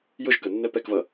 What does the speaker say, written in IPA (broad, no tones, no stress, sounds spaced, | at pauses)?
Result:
j ʊ ʒ k ə nː ɛ p ɛ k v ʌ